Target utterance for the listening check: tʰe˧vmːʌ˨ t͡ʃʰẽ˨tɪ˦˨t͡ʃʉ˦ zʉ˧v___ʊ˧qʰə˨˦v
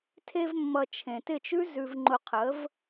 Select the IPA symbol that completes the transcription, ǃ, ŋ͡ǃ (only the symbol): ŋ͡ǃ